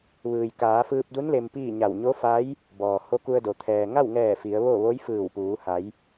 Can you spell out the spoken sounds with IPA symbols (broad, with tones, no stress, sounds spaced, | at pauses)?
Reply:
ʋ ɯː˩ j k aː˩˧ f ɯː˧ p̚ d u˧˥ n l e˧ m p iː˥˨ ɲ a˧˩ w ɲ o˧˥ f a˧˥ j | b ɔː˩ h o˧˥ k u˧ ə̯ d o˩ t̪ʰ ɛː˩ ŋ a˥˨ w ŋ ɛː˧˩ f i˩˧ ə̯ ʋ o˥˨ ʋ o˧˥ j f ɯː˧˩ w p uː˩˧ h a˩˧ j